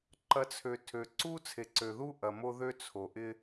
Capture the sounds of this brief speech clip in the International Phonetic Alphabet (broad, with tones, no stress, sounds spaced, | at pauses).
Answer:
ǃ ɐ˨˦ t͡sʰ ø˨ tʰ ø˨ ǀ u˦ t͡sʰ e˨ ǀ ø˨ ð u˦ ʔ ɐ˨ m o˦ ð ø˦ t͡sʰ o˨ ʔ ɪ˦